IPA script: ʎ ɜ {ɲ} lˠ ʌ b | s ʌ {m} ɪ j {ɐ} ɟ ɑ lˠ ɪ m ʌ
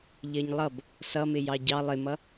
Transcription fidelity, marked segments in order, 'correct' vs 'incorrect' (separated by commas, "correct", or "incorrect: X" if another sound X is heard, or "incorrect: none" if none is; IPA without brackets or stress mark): correct, correct, incorrect: ɑ